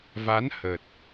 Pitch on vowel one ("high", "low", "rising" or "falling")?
rising